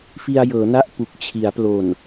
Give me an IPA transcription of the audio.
f i˧ a̯ j ɤː˩˦ n a˥˩ ʔ p u˨˩ k̚ t͡ɕʰ i˩˦ a̯ p l o˨˩ n

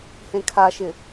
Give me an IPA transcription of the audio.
h ẽ kʰ a ʃ ɪ

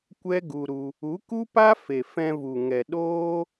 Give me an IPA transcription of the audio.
kʷ ɛ˦ ɡ u˧ ɾ u˧ | u˨˦ k u˦ p a˦ f e˨ f ɛ̃˧ v u˨ ŋ ɛ˨ ɗ oː˦

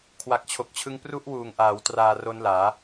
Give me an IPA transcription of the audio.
kʰ w a˨˩ k̚ t͡ɕʰ o˨˩ k̚ t͡ɕʰ ɯ˦˥ ŋ p r u˦˥ ʔ w uː˨˩ ŋ ʔ aː˩˦ w t r aː˧ r o˦˥ n l aː˩˦

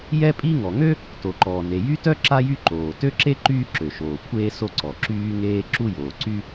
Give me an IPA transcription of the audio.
j ɛ˥ pʼ i˥ ŋ ɔ˩ ŋ ø˥ | t o˩ ǃ ɔː˩ n e˩ j y˥ t œ˥ ǁ a˥ j y˥ ǃ oː˩ t ø˥ ǁ e˥ ǃ yː˥ ǁ ø˩ ʃ oː˩ kʷʰ eː˥ s o˥ ǀ ɔ˩ ǁ yː˥ ŋ eː˥ ǁ u˥ j oː˩ ǀ y˥

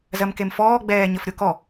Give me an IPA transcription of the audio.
z ɜ m k e m f ɔː ɡ͡b ɛː ɲ ə f ɾʲ o k ɔ

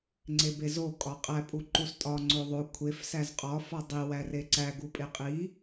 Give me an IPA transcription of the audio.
ŋ͡ǀ e b e z o kʼ ɒ qʼ æ pʼ u ǃ u s tʼ ɒ ŋ͡ǀ o ðˤ o kʷʰ e f s æ z qʼ ɒ f ɒ dˤ i w æ r e ǀ æ ɡ u pʼ e qʼ i

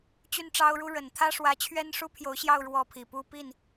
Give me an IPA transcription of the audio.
t͡ɕ y˥˩ n ʈ͡ʂ ɑ˥ ʊ̯ ɻ u˥ ɻ ə˨˩ n t̪ʰ ä˥ ʂ w ä˧˥ t͡ɕʰ ɥ ɛ˥ n ʂ u˥ pʰ j o˧˥ ʊ̯ ɕ j ɑ˥˧ ʊ̯ ɻ w ɔ˥˩ pʰ i˨˩ p u˥ p i˥˩ n

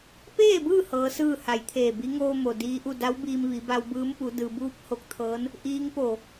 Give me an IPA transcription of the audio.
p eː˥˨ b ɯː˥˨ h ɤː˧˥ s ɯː˥˨ h a˩˧ j t̪ʰ eː˧˩ b i˧˥ ŋ oː˧ m o˩ d iː˧˥ ʔ u˥˨ d a˧˥ w b iː˧ m ʋ i˩˧ b a˧ w b ɯː˧˥ m p u˩˧ d ɯː˩ b uː˧ p̚ h o˧˥ k̚ t̪ʰ ɤː˧˥ n | ʔ iː˧˥ ŋ p o˧˩

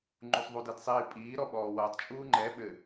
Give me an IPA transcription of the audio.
ŋ͡ǃ u sˤ ðˤ u d i d sˤ iː pʼ iː ɾ ɔ ɓ ɔː w ʌː tˤ t͡ʃʼ uː ŋ͡ǃ ɛ ɓ ɘ

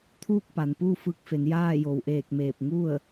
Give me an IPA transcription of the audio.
t̪ʰ uː˥˨ k̚ p a˩ n p uː˥˨ f ɯː˧ k̚ f e˩˧ n j aː˥˨ j o˩ w ʔ eː˧˩ k̚ m eː˧˩ p̚ ŋ u˥˨ ə̯

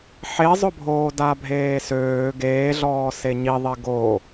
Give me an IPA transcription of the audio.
ħ e zˤ ʊ bʱ oː d a bʱ eː s øː ɡ eː ɮ ɔː s e ɲ i ðˤ e ɡ o

